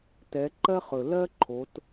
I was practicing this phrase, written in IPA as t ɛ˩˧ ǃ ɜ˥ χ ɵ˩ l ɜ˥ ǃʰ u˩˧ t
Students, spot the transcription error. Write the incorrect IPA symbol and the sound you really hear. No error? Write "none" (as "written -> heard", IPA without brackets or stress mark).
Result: u˩˧ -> o˩˧